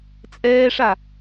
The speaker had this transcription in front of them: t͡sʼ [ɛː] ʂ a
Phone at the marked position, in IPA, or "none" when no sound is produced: ɛː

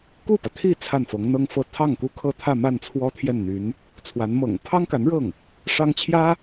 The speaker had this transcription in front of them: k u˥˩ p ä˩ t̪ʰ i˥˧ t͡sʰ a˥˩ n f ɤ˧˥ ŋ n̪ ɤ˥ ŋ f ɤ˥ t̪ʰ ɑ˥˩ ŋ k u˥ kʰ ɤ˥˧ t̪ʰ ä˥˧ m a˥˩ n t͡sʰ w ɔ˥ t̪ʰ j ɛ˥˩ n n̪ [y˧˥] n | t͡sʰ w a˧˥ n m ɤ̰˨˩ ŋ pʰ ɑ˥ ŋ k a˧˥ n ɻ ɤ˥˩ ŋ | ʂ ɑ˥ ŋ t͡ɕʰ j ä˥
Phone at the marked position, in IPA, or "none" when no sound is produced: y˧˥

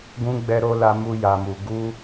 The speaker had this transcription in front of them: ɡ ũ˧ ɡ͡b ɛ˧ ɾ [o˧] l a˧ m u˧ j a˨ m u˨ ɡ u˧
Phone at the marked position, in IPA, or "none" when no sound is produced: o˧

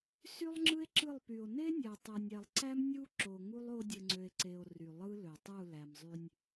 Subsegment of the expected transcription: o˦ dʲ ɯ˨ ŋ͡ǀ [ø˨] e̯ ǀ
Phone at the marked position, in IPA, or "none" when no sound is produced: ø˨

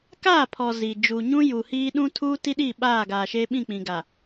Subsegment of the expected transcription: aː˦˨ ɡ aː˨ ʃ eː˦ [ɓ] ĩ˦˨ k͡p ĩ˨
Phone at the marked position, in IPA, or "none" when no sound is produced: ɓ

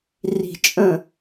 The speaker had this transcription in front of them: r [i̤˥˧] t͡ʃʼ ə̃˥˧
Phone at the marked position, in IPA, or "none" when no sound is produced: i̤˥˧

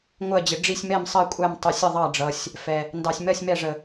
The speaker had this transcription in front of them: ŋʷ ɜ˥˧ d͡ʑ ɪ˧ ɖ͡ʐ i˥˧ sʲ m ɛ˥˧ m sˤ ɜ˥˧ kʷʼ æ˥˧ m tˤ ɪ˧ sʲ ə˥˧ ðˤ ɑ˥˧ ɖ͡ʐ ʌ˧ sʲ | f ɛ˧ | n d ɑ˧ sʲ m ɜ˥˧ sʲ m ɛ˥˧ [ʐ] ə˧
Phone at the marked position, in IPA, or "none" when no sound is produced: ʐ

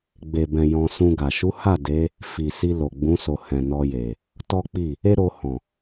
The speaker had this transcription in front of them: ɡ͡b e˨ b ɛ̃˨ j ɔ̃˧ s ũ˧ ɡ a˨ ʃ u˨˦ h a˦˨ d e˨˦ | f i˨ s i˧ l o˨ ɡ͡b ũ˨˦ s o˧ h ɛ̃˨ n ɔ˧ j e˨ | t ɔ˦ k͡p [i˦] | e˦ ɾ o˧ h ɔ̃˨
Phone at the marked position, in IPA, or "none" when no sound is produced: i˦˨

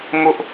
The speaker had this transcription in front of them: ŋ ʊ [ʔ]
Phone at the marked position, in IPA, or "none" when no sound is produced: ʔ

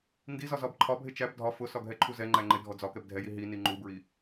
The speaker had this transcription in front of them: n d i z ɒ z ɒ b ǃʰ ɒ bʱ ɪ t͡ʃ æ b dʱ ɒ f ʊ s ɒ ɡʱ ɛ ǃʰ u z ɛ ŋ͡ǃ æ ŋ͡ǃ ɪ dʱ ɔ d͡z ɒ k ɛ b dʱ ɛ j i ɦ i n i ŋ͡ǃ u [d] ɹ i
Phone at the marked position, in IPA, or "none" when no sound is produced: b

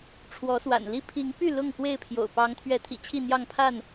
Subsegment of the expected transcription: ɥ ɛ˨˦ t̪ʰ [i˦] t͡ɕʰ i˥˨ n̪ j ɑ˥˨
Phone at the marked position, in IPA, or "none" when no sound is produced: ḭ˨˩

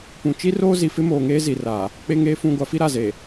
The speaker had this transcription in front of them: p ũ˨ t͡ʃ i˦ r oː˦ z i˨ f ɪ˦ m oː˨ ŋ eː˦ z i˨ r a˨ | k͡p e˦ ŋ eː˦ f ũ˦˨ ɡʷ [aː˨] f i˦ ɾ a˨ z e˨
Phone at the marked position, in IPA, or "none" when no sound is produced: a˨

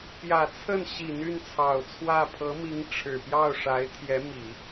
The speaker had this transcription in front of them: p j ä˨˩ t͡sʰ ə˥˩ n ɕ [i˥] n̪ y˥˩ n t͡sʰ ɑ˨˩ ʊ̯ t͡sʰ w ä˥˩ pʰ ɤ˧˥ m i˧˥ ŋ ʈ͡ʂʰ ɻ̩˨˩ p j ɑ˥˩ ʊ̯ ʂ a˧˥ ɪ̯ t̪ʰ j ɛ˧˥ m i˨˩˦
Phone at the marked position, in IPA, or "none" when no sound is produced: i˨˩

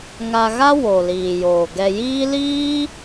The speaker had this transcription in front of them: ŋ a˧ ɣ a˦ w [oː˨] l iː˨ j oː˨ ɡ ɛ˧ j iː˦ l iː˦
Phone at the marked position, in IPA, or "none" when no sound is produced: o˨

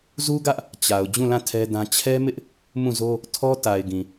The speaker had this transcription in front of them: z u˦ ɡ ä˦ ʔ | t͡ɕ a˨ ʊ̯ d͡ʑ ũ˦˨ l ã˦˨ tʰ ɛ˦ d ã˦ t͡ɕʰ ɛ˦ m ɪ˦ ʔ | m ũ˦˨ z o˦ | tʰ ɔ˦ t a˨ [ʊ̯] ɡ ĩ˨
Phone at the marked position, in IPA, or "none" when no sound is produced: ɪ̯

